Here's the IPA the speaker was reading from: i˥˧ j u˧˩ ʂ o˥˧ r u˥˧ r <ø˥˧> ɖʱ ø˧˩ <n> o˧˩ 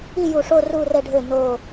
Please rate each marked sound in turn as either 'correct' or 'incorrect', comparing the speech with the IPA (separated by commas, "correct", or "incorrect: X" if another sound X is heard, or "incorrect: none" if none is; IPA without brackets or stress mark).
incorrect: ɛ˥˧, correct